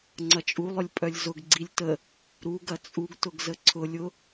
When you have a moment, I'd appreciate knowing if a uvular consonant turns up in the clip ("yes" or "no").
no